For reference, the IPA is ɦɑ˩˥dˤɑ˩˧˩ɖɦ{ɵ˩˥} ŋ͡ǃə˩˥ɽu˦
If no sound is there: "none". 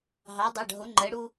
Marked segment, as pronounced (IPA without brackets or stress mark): o˩˥